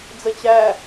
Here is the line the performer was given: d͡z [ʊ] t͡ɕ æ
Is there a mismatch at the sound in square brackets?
yes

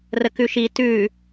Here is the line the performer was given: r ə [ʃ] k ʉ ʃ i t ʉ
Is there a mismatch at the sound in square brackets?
yes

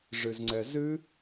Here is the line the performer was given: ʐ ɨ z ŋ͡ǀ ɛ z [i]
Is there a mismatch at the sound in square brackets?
yes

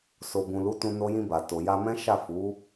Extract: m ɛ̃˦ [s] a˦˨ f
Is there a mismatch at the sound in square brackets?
yes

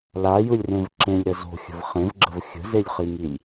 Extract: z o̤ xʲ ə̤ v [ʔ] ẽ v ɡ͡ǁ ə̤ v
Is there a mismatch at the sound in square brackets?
yes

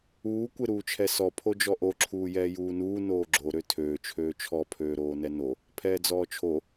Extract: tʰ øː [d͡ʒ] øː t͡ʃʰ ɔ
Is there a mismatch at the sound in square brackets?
yes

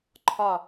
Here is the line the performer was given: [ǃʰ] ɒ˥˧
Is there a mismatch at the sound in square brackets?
no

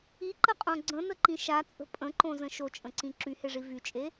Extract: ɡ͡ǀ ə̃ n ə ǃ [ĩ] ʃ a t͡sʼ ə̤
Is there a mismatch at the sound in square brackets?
no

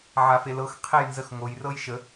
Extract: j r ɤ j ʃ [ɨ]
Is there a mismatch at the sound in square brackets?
yes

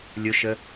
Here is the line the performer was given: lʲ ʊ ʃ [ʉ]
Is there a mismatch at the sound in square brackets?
yes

